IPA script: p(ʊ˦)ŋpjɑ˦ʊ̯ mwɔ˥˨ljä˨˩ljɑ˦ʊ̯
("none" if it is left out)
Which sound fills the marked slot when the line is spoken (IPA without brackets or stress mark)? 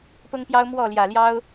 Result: ʊ˦